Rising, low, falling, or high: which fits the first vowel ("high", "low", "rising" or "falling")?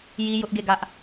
high